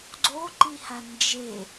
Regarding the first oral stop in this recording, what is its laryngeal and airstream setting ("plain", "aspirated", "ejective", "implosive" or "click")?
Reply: click